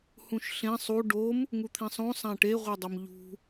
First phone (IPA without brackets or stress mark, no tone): h